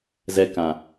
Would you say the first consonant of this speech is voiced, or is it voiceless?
voiced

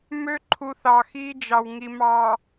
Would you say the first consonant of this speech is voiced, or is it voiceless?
voiced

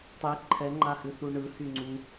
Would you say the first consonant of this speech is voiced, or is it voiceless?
voiceless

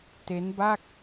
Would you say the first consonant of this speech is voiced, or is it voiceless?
voiceless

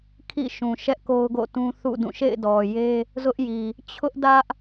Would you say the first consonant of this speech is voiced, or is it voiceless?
voiceless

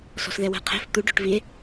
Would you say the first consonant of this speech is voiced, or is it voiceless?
voiceless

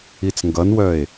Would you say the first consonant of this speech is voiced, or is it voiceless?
voiceless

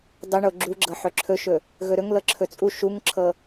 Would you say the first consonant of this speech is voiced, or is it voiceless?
voiced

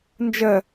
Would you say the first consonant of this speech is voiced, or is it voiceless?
voiced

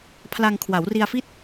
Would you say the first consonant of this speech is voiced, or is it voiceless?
voiceless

